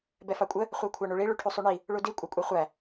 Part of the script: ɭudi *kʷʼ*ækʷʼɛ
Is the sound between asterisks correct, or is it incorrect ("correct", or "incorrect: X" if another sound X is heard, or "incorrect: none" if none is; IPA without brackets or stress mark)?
correct